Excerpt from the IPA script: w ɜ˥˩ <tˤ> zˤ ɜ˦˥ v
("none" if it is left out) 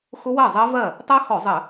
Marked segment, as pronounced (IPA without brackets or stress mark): none